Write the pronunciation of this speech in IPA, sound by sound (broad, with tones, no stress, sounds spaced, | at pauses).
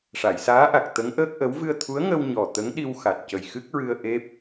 ʂ a˨˩˨ j s aː˧˥ ʔ a˨˩ k̚ t̪ ə˧˥ ŋ ʔ əː˦˥ k̚ ʔ ə˧˥ w v ɨ˧ ə̯ t̪ʰ u˧˥ ə̯ ŋ ə˧ w ɲ ɔ˨˩ t̪ ə˧˥ ŋ ɗ i˧ w x a˨˩ t̚ c ə˨˩ j x ɨ˦˥ k̚ ɹ ɨ˧ ə̯ ʔ e˦˥ p̚